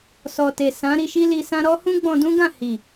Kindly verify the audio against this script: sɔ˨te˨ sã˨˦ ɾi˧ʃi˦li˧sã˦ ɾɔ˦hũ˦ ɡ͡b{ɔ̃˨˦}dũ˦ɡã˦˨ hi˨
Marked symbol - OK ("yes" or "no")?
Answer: no